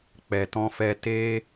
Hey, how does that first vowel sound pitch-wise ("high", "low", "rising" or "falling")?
low